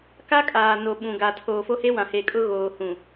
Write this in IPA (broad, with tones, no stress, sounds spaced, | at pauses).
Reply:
k a˦ kʼ aː˨ n o˨ ɓ ũ˨ ɡ a˨ tʰ oː˨ f o˦ h e˦ w ã˨ h e˨ kʼ ʊ˦ ɣ oː˨ h ũ˨